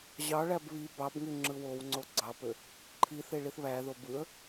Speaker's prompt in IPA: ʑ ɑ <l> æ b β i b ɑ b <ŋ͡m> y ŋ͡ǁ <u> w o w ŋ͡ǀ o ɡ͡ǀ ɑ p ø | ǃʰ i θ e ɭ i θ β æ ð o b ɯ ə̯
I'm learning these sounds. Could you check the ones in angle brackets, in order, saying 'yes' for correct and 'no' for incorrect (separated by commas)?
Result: no, no, no